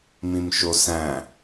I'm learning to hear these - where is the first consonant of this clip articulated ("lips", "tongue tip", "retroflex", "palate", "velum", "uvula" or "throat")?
lips